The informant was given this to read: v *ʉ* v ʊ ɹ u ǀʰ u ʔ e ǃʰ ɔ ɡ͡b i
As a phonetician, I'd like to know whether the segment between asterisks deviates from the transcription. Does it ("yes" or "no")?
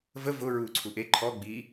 yes